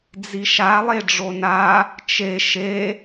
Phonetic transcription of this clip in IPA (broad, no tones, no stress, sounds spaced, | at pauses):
d͡z i ʃ a lˠ e ɖ͡ʐ o n a | t͡ʃ e ʃ e